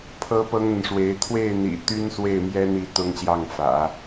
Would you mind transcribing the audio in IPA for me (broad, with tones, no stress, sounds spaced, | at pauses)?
pʰ ɤ˥ p ɤ˥ ŋ n̪ ə˨ n ʂ w e˧˥ ɪ̯ t̪ʰ w e˥˩ ɪ̯ n̪ ḭ˨˩ t̪ y˥ n s w e˥˩ ɪ̯ m j ɛ˥ n̪ i˧˥ t̪ ʊ˥ ŋ ɕ j ɑ˥˩ ŋ f ä̰˨˩˦